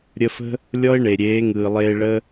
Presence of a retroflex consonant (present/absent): present